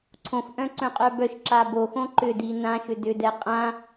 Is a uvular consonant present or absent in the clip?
present